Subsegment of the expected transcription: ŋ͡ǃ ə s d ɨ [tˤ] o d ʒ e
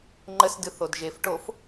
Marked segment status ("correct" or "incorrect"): incorrect